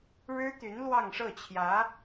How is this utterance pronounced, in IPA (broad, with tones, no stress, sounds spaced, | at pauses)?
ɻ ɻ̩˥ t̪ y˧˥ n l w ɑ˥˧ ŋ ʂ ɤ˥˩ t͡ɕʰ j ä˧˥